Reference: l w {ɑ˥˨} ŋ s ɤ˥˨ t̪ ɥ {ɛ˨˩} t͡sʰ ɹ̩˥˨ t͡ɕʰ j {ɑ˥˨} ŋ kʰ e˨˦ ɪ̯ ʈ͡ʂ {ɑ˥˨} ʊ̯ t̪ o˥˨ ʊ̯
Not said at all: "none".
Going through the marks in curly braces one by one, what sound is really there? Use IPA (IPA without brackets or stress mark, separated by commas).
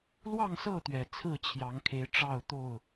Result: ɑ˥˨, ɛ˨˩, ɑ˨˦, ɑ˥˨